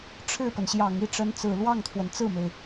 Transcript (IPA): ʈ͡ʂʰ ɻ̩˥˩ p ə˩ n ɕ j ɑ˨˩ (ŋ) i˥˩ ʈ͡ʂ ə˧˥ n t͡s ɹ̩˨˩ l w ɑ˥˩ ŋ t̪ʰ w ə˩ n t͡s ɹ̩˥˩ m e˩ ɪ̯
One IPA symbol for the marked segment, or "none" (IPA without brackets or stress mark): ŋ